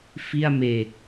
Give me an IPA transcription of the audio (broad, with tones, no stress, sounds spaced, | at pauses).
f i˥˩ a̯ m eː˨˩ k̚